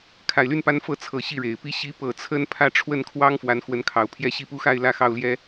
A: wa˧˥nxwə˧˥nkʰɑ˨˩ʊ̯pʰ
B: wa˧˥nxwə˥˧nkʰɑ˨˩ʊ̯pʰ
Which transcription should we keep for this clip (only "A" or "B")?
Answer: A